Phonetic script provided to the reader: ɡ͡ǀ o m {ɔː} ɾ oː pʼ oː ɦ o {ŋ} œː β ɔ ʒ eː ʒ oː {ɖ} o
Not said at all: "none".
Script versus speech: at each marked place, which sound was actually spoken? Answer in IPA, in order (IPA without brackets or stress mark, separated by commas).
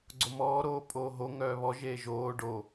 ɔː, ŋ, ɖ